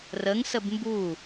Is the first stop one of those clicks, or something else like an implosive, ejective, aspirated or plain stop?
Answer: plain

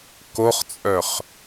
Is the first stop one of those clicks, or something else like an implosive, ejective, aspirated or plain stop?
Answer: plain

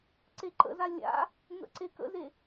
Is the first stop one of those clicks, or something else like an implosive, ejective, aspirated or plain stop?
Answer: click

